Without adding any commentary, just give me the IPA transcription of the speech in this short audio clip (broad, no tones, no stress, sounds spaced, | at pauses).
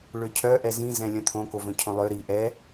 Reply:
ɭ ø cʰ œ ʔ ɛ z ĩ z ɛ̃ lʲ œ̃ t̪ʰ õ k o v œ̃ cʰ õ lˠ ø ɾ i ʔ ɛ